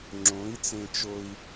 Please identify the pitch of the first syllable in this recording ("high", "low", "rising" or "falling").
rising